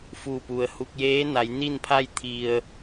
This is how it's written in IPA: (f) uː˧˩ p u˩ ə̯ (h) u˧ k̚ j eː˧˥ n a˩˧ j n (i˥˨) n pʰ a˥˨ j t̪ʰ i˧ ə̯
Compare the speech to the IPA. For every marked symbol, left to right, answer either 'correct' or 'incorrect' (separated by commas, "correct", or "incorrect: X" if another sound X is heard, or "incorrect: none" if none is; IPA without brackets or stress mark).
correct, correct, correct